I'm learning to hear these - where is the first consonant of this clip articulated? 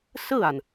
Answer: tongue tip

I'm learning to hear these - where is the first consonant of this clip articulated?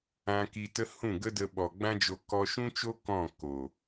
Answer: velum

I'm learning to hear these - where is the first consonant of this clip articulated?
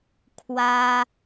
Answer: velum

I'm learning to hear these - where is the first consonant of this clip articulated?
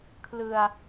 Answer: velum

